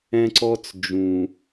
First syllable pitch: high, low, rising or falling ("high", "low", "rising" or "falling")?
high